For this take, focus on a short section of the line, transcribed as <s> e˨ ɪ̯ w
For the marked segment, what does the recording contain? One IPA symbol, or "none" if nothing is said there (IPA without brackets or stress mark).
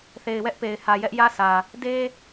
θ